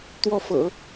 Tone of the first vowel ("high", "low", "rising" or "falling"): falling